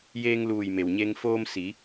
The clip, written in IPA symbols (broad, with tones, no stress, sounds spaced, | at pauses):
j eː˧ ŋ l uː˧˩ j m e˩ w ɲ e˧ ŋ f oː˧ m s i˩˧